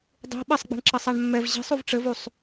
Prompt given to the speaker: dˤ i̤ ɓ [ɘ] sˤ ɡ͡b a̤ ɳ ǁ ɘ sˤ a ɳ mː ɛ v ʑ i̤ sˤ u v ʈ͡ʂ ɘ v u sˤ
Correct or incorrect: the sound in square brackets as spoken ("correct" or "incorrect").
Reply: incorrect